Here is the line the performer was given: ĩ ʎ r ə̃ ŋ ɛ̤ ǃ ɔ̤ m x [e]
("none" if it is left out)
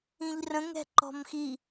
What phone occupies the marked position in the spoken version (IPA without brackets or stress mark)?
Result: i